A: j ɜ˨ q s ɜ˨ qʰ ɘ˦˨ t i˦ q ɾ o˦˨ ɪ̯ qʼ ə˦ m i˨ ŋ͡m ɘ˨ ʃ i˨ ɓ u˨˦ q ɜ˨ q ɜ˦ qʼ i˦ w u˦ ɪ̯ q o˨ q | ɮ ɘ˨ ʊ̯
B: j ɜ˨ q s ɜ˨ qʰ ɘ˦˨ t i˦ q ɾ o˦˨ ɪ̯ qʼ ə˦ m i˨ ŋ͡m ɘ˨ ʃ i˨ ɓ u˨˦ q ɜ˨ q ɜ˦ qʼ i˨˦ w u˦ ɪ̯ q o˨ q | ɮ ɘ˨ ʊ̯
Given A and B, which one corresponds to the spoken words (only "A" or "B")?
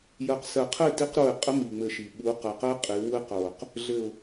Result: B